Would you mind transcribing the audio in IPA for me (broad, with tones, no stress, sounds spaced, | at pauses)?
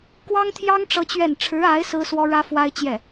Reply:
k w ɑ˥ ŋ t̪ʰ j ɑ˥ ŋ ʈ͡ʂ ɤ˥ t͡ɕ ɥ ɛ˥˩ n ʈ͡ʂʰ ɻ̩˧˥ a˧˥ ɪ̯ s ɹ̩˥ s w ɔ˥ ɻ ä˥ f w a˥ ɪ̯ t͡ɕ j ɛ˥˩